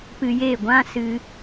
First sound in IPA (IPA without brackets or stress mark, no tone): p